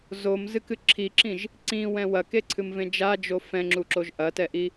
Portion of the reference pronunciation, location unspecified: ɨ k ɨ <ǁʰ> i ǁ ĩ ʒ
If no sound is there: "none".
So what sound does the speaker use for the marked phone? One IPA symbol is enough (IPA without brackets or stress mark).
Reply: ǁʰ